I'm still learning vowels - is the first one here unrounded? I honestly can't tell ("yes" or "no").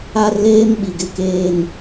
yes